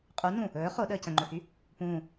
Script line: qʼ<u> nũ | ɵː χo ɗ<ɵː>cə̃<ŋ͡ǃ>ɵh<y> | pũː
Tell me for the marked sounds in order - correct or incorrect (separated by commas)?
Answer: correct, incorrect, correct, correct